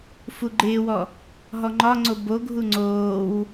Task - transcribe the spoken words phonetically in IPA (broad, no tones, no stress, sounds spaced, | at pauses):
f u ɡ͡ǃ ɪː w ɔ | ɦ ɔ ŋ͡ǃ ɒ ŋ͡ǀ o b o ɡʱ u ŋ͡ǀ oː w